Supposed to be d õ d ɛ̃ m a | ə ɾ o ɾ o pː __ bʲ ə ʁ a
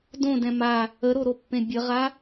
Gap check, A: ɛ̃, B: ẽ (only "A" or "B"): B